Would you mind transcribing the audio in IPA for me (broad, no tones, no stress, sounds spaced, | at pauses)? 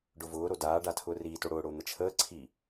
ɖ ʊ v ʊː ɾ o d aː ɖ a tʰ ʊː r iː t o ɽ ʊː ɽ ʊː n̪ ə t͡ʃʰ əː ǀʰ i